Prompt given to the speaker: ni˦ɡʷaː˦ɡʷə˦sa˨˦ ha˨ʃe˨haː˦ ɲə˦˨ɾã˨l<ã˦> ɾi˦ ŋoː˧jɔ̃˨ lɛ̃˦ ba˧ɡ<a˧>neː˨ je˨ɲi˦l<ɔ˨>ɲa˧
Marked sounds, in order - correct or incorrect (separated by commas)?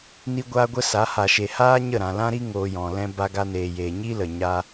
correct, correct, incorrect